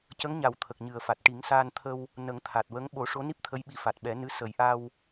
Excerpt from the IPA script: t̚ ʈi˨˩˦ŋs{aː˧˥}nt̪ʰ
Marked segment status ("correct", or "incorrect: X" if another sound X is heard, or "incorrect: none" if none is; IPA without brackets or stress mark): incorrect: aː˧